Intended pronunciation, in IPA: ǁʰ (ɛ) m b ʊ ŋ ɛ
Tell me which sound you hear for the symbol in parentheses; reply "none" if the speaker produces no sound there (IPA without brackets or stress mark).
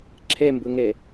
ɛ